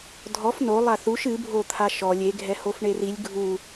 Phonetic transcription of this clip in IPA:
dʱɔf no lˠaθuʃ ɨbʱo t̪ʰaʃɔ lʲeɡʱɛ hofɳerilʲ ɡʱu

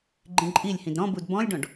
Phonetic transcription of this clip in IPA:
ɡ͡ǃĩǃʼilʲhĩd ɾɔ̃ budbɔ̃lʲɖɔ̃ɖ

